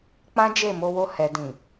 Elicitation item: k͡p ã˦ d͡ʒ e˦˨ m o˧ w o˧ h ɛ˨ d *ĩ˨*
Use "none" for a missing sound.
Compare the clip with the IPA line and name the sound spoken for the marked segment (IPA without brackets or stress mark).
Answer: ĩ˨